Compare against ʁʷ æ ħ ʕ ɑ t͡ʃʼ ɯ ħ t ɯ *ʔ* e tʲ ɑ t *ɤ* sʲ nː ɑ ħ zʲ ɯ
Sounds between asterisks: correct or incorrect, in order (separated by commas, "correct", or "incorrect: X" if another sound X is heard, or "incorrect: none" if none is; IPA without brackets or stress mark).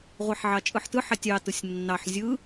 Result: incorrect: ħ, incorrect: ɯ